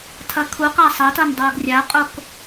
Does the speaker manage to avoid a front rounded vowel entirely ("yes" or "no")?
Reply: yes